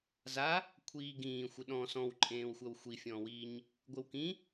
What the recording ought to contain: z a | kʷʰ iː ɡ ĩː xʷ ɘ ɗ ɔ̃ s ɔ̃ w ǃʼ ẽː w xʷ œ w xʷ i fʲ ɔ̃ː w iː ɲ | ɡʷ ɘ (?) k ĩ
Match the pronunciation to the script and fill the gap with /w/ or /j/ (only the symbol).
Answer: w